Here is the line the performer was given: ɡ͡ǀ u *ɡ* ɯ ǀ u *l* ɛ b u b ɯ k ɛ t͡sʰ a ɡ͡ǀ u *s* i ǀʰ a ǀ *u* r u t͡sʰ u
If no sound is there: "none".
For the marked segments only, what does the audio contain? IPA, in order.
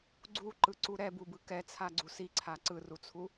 ǃ, ɾ, s, ɯ

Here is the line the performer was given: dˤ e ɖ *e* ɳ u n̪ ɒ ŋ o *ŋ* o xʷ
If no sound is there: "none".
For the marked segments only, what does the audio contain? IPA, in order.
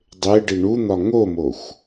i, m

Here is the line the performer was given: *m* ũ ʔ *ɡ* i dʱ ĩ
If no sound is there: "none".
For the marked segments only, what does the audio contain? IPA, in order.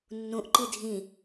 nː, ǃ

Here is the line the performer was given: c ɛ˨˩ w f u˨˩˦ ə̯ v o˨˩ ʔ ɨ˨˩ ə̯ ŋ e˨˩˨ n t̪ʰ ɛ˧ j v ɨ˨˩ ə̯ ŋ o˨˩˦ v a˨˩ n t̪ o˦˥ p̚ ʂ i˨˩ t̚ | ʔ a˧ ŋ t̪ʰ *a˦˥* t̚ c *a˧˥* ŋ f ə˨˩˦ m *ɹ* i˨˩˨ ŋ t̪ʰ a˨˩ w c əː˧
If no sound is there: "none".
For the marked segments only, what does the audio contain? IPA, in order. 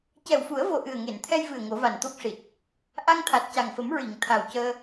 a˨˩, a˨˩, ɹ

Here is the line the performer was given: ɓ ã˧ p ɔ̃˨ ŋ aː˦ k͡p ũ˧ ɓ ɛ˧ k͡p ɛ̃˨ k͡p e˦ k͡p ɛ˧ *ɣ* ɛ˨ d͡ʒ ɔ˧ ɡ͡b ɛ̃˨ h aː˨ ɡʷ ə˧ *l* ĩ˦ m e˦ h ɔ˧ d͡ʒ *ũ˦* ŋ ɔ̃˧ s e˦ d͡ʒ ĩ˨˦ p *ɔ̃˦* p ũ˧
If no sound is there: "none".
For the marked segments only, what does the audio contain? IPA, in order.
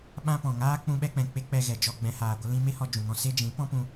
ɣ, l, ũ˨, ɔ̃˦

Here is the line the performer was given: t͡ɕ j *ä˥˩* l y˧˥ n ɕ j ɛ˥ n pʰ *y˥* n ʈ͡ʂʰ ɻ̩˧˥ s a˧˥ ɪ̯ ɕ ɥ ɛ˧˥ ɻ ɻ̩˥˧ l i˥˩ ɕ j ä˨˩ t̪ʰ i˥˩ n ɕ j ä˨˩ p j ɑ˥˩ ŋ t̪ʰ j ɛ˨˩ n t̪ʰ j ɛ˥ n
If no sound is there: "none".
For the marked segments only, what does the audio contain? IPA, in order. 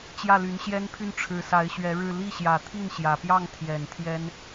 ä˥˩, y˥

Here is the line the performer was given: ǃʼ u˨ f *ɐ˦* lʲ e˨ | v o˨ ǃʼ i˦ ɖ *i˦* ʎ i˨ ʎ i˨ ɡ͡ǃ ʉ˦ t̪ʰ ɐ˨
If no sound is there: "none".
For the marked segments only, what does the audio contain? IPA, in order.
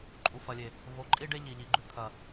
ɐ˨, e˦

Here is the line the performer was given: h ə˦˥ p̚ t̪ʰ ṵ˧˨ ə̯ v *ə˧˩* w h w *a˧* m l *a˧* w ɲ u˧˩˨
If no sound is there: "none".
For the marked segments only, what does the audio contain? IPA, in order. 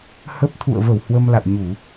ə˧˩, ə˧, a̰˧˨

